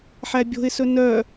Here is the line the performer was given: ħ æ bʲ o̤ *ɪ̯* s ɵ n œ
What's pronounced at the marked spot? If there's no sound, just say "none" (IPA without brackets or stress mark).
ɪ̯